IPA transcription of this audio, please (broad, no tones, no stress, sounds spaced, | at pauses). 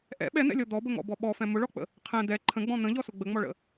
ʔ ɛ̰ ɓ ɛ n̪ ɛ̰ lʲ ɔ d̪ ɔ b ə ŋ ɔ̰ b ɔ ɓ ɔ f ɛ̃ m ʊ ɭ ɔ k͡p ə̰ | qʰ ɛ̃ d̪ ɛ ǃʰ ə̃ ɡ͡b ɔ̃ n̪ ə̃ ʎ ɔ s ʊ ɡ͡b ə ŋ͡m ɔ ɭ ə̰